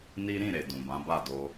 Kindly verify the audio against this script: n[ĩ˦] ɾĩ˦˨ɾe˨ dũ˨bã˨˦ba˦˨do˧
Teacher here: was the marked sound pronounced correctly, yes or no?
no